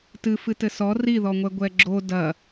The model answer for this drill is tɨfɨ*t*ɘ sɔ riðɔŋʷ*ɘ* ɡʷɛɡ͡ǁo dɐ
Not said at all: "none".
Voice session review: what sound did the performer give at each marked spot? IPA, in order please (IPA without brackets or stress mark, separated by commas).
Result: t, ɛ